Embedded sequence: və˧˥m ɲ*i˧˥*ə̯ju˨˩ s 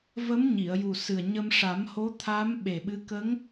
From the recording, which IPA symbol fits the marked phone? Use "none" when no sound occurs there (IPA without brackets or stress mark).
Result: i˨˩˨